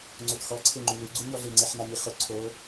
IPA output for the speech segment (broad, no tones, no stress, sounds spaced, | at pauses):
ŋ͡ǀ o t x ɔ ǀʰ e ŋ͡ǃ u l u ɡ͡ǀ u ɲ ɔ ɮ ɪ ŋ͡ǀ e ħ n a ɲ i χ ʊ ǀʰ o